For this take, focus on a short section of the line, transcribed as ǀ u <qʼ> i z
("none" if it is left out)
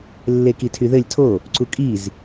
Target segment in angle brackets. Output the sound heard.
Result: kʼ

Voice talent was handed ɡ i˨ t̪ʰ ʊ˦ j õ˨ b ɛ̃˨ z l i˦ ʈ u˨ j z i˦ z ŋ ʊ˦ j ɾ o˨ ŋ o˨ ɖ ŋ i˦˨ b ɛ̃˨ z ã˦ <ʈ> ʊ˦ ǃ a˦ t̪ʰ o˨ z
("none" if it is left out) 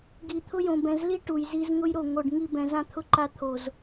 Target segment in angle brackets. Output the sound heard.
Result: t̪ʰ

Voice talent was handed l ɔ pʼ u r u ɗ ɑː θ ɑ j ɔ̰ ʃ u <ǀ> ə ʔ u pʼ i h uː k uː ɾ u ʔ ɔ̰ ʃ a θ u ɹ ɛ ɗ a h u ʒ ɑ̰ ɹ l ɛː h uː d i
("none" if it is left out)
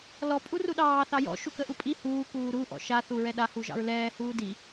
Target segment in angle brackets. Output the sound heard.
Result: k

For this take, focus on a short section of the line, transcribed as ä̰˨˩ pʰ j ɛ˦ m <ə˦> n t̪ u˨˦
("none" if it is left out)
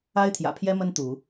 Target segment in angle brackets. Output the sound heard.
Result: ə˦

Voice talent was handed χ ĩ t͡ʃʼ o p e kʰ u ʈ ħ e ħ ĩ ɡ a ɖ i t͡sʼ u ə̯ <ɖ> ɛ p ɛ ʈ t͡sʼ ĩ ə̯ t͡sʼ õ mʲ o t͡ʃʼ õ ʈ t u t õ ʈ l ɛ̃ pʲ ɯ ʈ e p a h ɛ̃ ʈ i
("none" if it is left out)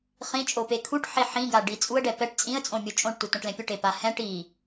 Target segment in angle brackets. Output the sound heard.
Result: ɖ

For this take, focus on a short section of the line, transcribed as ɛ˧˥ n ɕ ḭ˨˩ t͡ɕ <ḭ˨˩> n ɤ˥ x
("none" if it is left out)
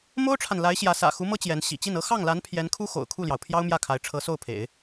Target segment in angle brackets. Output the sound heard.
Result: i˥˩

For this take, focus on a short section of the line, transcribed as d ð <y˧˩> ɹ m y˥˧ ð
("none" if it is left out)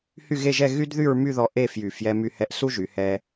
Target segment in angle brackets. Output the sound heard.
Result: y˥˧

